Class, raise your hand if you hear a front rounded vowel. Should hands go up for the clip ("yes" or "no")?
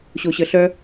yes